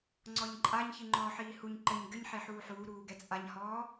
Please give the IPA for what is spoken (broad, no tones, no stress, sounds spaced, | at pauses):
ŋ͡ǀ ɔ ɲ ǃʼ a ɲ ç i ŋ͡ǃ ɔː ħ iː h u ɲ ǃ ɘ ɲ ɡ ɘ ɲ ħ e ħ uː ħ uː ɾ uː ɡ ɛ t͡sʼ a ɲ h ɔː